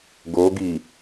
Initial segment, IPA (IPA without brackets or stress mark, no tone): ɡ